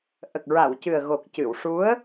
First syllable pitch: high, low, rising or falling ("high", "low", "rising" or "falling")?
low